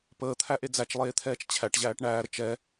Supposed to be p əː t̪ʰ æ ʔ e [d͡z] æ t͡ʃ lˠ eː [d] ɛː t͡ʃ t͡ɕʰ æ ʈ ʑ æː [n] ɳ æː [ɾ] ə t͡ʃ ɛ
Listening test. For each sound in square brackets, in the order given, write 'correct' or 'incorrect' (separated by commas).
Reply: correct, incorrect, incorrect, correct